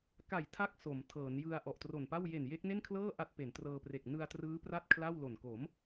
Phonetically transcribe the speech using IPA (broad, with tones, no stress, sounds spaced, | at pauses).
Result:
k a˨˩ j tʰ a˦˥ k̚ s o˩˦ m tʰ ɤː˩˦ n j ɯ˧ a̯ ʔ ɔ˨˩ ʔ t r o˨˩ n p a˥˩ w j e˨˩ n j e˦˥ k̚ n e˥˩ n kʰ l ɤː˥˩ ʔ a˦˥ t̚ p e˩˦ n t r ɤː˧ p r e˨˩ k̚ n ɯ˧ a̯ t r ɯː˦˥ p r a˥˩ t̚ kʰ l a˥˩ w l o˨˩ n k o˩˦ m